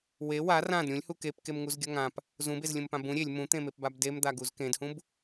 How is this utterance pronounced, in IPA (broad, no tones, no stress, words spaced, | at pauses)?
we wa rãd ɾʲũlʲhu kepkemŋuzɡʲʌ ŋãp | zũbezlʲũmpã bũ ɾʲelʲ mũt̪ẽmepbab demd̪aɡuz kẽdhũb